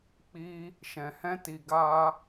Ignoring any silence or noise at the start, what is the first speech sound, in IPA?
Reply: k͡p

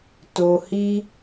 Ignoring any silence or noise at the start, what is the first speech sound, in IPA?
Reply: t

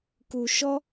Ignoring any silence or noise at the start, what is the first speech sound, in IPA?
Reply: k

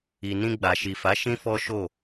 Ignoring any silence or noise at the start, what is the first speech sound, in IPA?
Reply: i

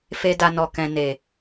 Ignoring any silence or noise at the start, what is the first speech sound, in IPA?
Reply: f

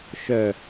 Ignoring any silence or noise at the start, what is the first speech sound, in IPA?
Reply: ʃ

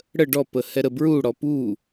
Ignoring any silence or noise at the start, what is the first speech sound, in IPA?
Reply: ɽ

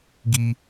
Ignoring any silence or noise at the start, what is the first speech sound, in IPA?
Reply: ɡ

